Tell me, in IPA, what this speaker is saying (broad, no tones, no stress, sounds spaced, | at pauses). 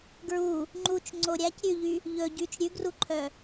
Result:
ɡ ɹ u | ŋ͡ǃ u t͡ʃ ŋ͡ǀ o ɾʲ æ c ɾʲ ʉ ʎ y | ʎ ɵ ɟ y t͡ʃ ɾʲ ʉ ɡ r u ǃʰ œ